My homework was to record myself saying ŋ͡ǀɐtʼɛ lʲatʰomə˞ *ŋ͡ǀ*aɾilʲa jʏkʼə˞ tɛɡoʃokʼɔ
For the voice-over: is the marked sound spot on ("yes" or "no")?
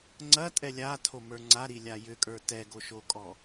yes